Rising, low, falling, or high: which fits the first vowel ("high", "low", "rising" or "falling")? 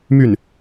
falling